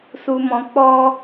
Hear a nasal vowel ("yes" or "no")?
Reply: yes